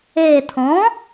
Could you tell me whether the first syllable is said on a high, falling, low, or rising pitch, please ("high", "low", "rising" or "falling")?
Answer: low